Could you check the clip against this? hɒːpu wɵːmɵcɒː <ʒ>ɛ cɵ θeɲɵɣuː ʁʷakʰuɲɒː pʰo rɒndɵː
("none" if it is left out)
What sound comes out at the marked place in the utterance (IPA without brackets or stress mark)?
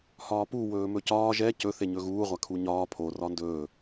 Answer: ʒ